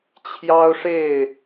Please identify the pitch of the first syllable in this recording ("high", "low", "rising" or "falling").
high